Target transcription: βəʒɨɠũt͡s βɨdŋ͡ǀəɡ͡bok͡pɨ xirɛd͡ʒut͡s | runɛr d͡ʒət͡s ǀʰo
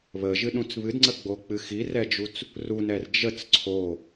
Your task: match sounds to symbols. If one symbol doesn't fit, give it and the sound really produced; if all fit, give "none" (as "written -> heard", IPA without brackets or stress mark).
ɠ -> ɗ